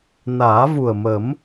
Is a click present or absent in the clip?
absent